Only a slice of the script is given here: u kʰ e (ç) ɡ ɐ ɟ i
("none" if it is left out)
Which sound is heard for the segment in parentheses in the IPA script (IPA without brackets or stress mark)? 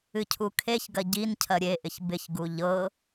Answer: ç